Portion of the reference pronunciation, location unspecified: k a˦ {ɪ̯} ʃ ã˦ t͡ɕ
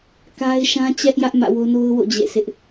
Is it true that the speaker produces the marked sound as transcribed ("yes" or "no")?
yes